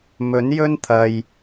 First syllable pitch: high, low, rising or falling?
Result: rising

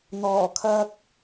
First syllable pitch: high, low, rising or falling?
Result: low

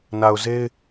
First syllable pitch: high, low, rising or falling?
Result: low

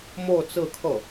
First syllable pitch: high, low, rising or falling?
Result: falling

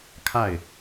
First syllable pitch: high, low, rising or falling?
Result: falling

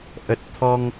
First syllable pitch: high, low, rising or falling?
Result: low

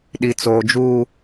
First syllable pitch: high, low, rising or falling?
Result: low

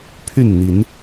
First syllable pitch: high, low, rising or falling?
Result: falling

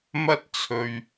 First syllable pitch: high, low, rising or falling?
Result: high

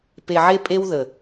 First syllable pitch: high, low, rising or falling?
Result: low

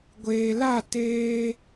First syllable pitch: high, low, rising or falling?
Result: low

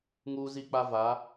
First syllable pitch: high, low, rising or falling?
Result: high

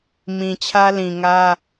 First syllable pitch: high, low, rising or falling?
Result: low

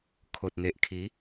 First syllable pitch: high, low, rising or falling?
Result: low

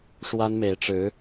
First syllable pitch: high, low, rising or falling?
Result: high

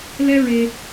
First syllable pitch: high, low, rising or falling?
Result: high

